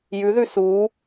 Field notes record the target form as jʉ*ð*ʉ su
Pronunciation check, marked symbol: correct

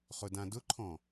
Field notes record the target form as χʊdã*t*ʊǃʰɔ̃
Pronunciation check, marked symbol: incorrect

